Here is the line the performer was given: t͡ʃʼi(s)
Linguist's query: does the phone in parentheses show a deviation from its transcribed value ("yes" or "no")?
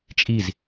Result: yes